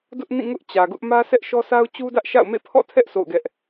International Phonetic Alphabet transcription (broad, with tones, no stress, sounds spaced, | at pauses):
d ʊ˦ ʔ n ĩ˦˨ ŋ ʊ˦ ʔ t͡ɕ ä˨ ɡ ʊ˦ ʔ m ä˦ sʰ ɛ˦ ʔ ʃ ɔ˦ s a˦ ʊ̯ t͡ɕ u˦ d ä˦ ʔ ʃ a̰˦˨ ʊ̯ m ḛ˦˨ pʰ ɔ̰˦˨ tʰ ɛ˦ ʔ s o̰˦˨ ʊ̯ ɡ ɛ˦ ʔ